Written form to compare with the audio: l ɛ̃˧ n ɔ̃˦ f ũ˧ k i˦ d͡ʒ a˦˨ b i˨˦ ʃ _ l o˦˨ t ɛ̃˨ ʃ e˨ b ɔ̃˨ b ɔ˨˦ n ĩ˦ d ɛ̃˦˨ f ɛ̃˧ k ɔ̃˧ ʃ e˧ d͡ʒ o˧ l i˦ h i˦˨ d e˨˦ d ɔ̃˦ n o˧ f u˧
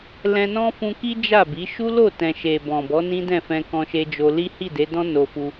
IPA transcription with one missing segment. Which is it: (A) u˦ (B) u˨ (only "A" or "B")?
A